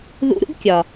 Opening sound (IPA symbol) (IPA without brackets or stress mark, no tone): ð